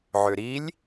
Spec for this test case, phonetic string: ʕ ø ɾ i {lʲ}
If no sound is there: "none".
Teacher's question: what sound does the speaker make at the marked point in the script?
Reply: lʲ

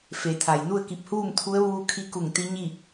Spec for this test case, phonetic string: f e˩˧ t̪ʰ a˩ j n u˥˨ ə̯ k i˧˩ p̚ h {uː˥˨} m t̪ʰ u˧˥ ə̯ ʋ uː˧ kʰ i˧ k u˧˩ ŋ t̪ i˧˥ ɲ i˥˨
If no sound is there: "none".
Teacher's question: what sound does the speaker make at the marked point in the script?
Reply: uː˥˨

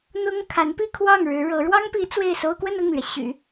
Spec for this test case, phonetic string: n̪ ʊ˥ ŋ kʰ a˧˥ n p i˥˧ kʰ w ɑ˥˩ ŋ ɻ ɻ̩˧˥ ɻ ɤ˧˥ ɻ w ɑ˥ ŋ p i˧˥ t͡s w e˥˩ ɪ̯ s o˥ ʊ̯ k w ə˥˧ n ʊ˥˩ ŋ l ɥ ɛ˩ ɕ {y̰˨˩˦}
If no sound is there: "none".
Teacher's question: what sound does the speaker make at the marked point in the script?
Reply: y̰˨˩˦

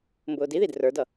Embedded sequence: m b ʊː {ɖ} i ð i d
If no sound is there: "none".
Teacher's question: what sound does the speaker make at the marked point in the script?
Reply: d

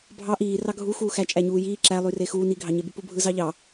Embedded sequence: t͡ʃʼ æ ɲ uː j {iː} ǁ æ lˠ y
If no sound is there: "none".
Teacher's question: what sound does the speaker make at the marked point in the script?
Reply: iː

